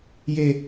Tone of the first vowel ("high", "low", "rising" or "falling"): high